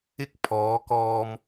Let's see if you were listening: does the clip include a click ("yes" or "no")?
no